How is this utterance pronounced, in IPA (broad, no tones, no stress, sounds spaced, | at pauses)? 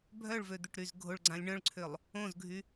bʱ œ ɭ v ø d̪ ʏ ʈ ɾ y z ɡʱ o ɭ ɡ͡ǀ ã lʲ ɳ œ̃ ɭ ǀʰ ʏ lˠ | õ z ɡʱ y